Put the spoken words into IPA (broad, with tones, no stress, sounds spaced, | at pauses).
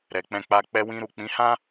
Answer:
ɾ ɛ˨ k͡p ɛ̃˧ k͡p a˧ k͡p ɛ˧ w ĩ˧ ɾ u˨ k͡p ĩ˨˦ h ã˦